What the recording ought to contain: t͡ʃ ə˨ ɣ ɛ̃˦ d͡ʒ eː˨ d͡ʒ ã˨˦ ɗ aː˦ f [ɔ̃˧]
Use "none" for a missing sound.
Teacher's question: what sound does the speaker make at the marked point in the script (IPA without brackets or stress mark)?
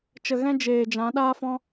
ɔ̃˦